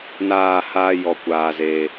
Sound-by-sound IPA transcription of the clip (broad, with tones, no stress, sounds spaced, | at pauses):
n aː˦˨ h aː˦ j ɔ˧ kʷ aː˧ z e˧